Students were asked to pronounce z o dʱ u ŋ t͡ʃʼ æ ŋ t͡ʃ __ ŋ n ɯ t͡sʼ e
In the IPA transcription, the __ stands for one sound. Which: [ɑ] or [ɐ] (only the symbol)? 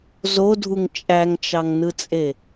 ɑ